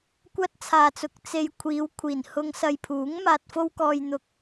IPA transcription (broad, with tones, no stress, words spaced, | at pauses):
kʷɐ˥t̚ t͡sʰaː˨t͡sʊ˨˥k̚ t͡se˧j kʷʰiː˨˧wkʷʰiː˨˩n hʊ˧ŋ sɐ˨jpʰuː˨˥ŋ maː˧t̚fo˥wkɔː˧jn̪ʊ˧k̚